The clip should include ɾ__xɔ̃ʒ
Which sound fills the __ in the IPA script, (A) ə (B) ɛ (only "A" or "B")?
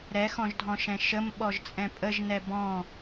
B